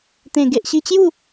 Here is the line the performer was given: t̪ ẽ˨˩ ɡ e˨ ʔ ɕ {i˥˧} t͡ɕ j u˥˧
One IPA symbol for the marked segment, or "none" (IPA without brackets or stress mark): i˧